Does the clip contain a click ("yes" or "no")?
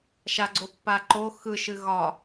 yes